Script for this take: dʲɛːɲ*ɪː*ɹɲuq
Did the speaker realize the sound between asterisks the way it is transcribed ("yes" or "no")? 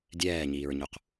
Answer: no